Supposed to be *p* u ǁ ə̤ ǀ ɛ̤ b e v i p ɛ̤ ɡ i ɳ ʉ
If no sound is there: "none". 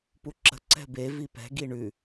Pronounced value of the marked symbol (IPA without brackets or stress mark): p